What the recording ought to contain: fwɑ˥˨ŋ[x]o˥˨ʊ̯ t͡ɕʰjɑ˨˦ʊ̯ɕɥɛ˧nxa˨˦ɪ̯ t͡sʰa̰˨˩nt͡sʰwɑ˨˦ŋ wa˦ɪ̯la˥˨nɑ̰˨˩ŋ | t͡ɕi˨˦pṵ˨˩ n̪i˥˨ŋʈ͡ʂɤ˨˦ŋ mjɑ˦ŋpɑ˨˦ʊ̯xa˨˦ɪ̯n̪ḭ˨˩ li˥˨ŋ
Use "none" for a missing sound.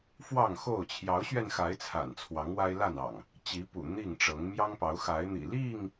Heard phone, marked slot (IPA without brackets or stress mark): x